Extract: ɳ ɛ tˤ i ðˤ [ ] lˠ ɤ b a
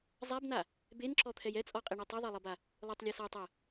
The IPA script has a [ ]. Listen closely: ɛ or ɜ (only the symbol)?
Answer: ɜ